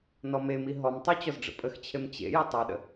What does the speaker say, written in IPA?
n ɔ m e m i ɦ ɔ m tˤ o t͡ɕ ɔ z ɖ͡ʐ ə̰ pʼ ə x t͡ɕʰ e m t͡ɕ ḛ j ə tˤ ɛ ɗ ə̰

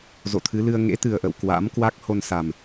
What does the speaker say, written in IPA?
z o̰˧˨ t̪ʰ ɨ˨˦ l ɨ˧ ə̯ ŋ ḛ˧˥ t̪ ɨ˨˩ ə̯ ʔ ə̰˧˨ w k w a̰˧˥ m k w a˦˥ k̚ h o˧ n s a˨˩ m

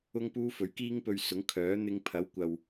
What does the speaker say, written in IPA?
ʊ˥ ŋ p uː˥ f ɵ˨˥ ɥ k iː˥ ŋ p ɵ˧ ɥ s ʊ˨˥ ŋ kʰ œː˨˥ n̪ ɪ˧ ŋ pʰ ɐ˨˥ w kʷ ɐ˨ w

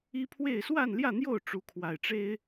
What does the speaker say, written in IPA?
i˦ pʰ w e˥˨ ɪ̯ s w a˥˨ n l j ä˥˨ n̪ j o˥˨ ʊ̯ ʈ͡ʂ u˨˦ kʰ w a˨˩ ɪ̯ ʈ͡ʂ e˦ ɪ̯

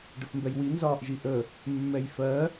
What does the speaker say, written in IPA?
ɖ ə f m b ɛ j w i n z ɒː ʔ ʒ i ʔ ə | mː ɛ j f ɜ

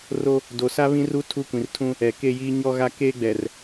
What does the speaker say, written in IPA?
r o˦ | d o˨ s a˦ β ĩ˦ r u˦ tʰ u˦˨ kʷ ĩ˨ r tʰ ũ˦ | ɛ˨ k e˦ j iː˦ ɲ ɔ˦ ɣ a˦ k eː˦ ɡ͡b ɛ˨ r

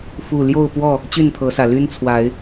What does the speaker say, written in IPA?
f u˥˨ l j o˥˨ ʊ̯ p w ɔ˥˨ | t͡ɕ y˥˨ n t̪ʰ ɤ˨˦ s ä˨˩ l y˦ n t͡sʰ w a˨˦ ɪ̯

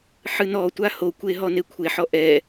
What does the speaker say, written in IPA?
ħ ɨ n ɔ tʷ a h o kʷ e ɦ ɔ n e kʷʰ e ħ ɔ ʔ ɛ

